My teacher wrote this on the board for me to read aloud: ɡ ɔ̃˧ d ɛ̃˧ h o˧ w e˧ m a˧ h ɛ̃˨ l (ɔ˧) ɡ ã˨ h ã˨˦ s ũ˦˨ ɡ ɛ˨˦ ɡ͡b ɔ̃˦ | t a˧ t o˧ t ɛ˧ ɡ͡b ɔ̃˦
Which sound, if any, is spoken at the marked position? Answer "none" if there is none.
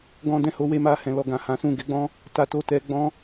ɔ˨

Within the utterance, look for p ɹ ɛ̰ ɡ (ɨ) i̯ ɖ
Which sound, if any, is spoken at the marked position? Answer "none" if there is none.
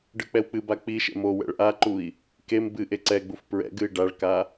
ɨ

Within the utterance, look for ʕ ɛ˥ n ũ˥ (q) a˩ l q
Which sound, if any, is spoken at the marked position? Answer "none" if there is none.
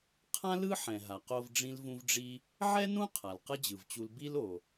qʰ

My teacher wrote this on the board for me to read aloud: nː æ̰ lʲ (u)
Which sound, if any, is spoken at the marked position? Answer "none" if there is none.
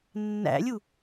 u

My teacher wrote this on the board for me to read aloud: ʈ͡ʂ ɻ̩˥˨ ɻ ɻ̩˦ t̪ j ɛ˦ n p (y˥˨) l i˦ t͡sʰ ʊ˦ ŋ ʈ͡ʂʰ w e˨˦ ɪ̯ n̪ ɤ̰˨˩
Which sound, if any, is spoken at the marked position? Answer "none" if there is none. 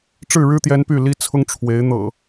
y˥˨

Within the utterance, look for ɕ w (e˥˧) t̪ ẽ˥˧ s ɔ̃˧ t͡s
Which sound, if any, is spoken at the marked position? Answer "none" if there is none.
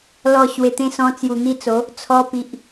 e˨˩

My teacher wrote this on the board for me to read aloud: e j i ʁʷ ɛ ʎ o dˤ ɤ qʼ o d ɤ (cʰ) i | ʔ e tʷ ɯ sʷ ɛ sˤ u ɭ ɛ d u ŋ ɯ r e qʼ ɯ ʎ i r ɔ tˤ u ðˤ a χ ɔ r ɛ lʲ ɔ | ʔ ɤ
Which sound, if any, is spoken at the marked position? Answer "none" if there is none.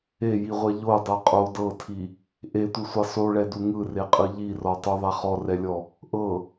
tʰ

